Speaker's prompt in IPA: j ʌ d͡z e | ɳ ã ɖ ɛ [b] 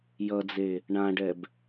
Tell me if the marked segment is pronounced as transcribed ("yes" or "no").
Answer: yes